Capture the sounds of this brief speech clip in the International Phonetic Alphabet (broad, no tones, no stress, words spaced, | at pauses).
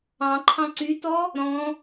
ɑ̃ ǃʰɑ̃ǀytɔ | ɾɔ̃